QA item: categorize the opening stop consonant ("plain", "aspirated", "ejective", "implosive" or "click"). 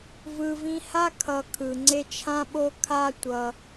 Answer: aspirated